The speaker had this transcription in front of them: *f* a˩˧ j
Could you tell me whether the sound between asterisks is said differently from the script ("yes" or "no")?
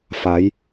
no